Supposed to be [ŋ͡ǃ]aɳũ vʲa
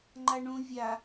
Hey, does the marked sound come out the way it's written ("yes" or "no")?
yes